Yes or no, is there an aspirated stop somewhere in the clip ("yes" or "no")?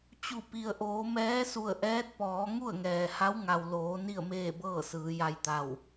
no